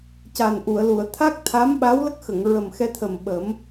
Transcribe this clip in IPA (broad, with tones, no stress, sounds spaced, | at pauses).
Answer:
c a˨˩ n ʔ u˨˩˨ ə̯ l u˨˩˨ ə̯ t̪ʰ a˦˥ k̚ t̪ʰ a˧˥ m ɓ a˧˥ w l ə˦˥ k̚ x ə˨˩˨ ŋ ɹ ə˨˩ m x ɛ˧ t̪ʰ ə˨˩ m ɓ ə˨˩˦ m